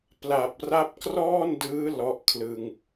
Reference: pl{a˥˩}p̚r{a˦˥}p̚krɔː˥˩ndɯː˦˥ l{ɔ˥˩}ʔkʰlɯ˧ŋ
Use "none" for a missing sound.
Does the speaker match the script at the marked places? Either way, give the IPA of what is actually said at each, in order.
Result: a˨˩, a˦˥, ɔ˦˥

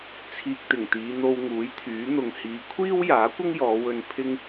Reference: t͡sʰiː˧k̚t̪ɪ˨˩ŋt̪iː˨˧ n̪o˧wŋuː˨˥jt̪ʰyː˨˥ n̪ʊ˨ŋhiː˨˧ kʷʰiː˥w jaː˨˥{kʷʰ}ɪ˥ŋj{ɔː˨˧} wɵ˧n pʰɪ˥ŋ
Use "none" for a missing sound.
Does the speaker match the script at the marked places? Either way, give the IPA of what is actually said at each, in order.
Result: kʷ, ɔː˨˧

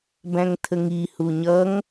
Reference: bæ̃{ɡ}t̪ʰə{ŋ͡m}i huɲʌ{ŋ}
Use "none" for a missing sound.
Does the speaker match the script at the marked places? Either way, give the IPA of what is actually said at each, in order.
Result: ŋ, ŋ, ŋ

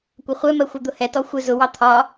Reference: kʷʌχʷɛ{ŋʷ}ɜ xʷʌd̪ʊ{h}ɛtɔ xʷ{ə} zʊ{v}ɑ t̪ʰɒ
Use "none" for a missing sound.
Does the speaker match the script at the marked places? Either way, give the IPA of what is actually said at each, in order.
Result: m, h, ɪ, w

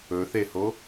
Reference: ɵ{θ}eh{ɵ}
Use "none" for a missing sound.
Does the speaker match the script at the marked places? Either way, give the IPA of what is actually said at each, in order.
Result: θ, o

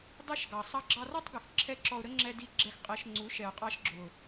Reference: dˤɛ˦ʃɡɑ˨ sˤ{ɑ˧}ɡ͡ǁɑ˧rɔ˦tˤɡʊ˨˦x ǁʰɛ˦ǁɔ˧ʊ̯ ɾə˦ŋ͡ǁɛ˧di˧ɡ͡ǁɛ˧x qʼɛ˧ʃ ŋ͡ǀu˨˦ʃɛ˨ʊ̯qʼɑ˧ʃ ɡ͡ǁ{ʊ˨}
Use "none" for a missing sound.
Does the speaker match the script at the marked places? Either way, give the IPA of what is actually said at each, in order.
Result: ɑ˧, ʊ˨

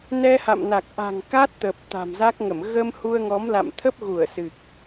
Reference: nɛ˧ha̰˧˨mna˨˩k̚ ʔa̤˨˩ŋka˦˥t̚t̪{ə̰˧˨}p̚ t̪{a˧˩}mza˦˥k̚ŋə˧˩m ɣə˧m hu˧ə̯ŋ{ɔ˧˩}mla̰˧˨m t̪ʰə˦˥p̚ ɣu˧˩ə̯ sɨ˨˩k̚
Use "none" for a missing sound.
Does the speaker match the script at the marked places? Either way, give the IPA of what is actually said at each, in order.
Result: ə˨˩, a̤˨˩, ɔ˨˦

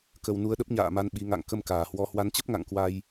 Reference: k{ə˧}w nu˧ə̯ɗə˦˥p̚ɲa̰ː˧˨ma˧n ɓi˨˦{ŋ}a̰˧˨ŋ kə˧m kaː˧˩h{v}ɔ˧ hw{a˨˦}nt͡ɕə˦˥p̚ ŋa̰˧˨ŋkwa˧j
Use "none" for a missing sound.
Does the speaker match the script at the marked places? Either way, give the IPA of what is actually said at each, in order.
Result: ə˧, ŋ, w, a˨˦

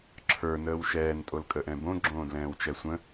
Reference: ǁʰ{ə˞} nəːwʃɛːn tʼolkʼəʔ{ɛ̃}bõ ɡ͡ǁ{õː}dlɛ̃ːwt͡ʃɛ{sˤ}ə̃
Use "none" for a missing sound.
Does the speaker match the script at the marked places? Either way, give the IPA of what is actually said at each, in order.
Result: ə˞, ɛ̃, õː, sʷ

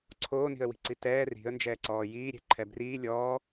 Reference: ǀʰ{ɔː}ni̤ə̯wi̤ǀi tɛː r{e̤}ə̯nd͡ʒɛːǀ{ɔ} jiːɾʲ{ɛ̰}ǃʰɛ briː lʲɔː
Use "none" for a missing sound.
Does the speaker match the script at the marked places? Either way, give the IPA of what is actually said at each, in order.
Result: oː, i̤, ɔː, ɛ̤

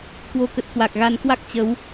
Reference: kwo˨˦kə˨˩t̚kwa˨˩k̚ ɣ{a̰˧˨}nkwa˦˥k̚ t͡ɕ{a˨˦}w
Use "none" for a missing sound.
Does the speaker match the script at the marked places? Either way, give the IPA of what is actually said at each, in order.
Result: a˨˦, ə˨˦

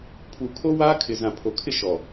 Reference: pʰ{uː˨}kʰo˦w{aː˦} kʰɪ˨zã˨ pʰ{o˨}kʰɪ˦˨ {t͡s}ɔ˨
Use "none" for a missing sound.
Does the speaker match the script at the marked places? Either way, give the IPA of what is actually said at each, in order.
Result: u˨, aː˦, o˨, ʃ

